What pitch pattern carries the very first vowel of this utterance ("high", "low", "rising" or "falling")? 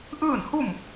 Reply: falling